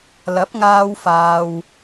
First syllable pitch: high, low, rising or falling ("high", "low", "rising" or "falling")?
rising